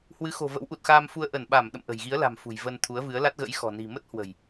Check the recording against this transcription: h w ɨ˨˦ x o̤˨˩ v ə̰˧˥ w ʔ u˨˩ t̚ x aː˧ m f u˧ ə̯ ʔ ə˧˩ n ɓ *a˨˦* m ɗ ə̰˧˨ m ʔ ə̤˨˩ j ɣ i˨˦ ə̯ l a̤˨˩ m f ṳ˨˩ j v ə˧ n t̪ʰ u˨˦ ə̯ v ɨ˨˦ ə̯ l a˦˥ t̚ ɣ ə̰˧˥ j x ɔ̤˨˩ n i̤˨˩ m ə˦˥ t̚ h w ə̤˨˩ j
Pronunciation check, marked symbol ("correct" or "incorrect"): incorrect